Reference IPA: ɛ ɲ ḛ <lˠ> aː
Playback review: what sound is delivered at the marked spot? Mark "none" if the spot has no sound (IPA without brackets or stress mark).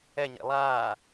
lˠ